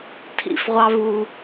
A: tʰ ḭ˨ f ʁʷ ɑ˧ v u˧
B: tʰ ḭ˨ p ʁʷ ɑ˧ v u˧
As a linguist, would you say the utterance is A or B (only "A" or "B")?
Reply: A